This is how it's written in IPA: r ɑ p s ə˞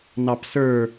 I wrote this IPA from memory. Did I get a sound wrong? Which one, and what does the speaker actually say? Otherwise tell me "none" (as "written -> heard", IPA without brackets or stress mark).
r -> n